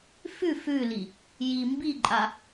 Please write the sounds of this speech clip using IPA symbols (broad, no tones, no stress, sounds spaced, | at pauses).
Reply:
f ʉ f ʉ l i | j i m b i ǃʼ a